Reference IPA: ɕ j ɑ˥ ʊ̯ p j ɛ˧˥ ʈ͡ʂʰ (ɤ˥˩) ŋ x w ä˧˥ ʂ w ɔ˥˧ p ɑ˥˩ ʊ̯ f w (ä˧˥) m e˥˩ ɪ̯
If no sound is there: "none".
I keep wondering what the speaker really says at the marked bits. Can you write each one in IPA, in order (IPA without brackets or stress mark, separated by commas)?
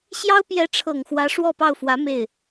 ɤ˨˩, ä˧˥